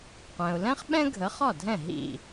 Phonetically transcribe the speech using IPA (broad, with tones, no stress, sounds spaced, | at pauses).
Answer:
qʷ ɛ̃˩ ʊ̯ l ɛ̃˥ χ ɓ ɛ̃˥ ɡʱ ə˩˥ χ ɒ˥˩ dʱ ɛ̃˥˩ ɦ ḭ˥˩